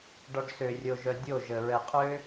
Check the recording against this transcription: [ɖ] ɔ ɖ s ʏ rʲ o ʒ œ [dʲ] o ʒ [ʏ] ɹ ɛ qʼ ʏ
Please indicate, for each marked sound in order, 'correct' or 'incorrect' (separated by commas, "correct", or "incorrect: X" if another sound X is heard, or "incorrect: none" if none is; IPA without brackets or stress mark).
correct, correct, incorrect: ə